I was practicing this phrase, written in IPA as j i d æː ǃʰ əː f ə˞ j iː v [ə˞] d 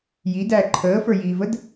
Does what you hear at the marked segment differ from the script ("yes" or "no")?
yes